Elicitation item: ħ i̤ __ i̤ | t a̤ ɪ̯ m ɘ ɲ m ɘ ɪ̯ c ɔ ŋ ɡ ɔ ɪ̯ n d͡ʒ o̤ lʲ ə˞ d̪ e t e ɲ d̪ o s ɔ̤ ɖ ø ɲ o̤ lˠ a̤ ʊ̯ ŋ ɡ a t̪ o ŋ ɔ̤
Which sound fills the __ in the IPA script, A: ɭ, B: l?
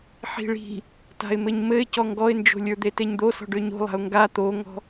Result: A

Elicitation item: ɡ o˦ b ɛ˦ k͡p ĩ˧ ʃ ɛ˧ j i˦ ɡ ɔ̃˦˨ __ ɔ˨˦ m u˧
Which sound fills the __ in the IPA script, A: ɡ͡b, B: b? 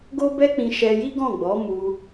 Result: A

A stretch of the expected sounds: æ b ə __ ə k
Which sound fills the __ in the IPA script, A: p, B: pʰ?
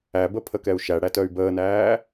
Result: B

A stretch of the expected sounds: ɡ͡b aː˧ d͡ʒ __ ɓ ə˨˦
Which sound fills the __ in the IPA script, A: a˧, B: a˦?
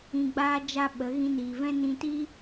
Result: A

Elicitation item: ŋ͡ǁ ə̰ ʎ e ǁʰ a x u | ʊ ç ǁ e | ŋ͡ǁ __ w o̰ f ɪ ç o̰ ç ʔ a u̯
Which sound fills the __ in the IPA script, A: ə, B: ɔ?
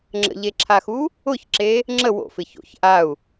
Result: A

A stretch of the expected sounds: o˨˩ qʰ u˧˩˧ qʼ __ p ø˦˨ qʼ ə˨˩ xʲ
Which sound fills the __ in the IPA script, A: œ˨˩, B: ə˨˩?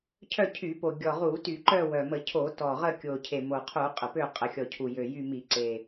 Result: B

